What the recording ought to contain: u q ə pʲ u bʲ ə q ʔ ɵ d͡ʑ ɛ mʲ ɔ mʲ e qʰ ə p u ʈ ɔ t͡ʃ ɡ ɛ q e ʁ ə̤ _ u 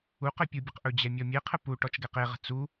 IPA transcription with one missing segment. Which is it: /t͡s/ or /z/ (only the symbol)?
t͡s